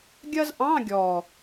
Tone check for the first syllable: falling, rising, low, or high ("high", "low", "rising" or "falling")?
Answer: high